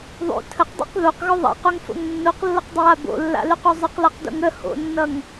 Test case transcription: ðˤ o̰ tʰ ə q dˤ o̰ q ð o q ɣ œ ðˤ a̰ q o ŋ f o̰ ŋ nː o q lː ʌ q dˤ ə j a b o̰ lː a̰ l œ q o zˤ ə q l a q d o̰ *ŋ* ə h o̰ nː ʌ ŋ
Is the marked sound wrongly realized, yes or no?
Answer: no